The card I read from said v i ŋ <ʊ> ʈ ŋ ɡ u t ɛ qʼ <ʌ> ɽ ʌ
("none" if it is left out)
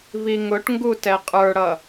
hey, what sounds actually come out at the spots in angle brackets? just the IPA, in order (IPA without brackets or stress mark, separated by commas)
ʊ, ə˞